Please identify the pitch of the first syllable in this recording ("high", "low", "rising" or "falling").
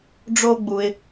high